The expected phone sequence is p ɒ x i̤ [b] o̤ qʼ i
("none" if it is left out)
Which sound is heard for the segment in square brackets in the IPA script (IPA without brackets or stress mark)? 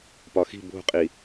b